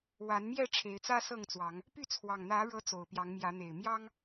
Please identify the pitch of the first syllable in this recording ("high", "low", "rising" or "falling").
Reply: rising